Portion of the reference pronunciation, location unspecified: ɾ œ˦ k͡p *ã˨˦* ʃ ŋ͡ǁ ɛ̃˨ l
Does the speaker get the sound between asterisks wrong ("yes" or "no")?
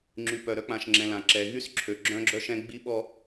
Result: yes